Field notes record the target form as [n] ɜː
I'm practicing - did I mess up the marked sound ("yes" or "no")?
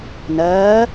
no